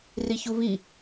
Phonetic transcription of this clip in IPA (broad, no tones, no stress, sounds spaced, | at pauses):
r i ç u β i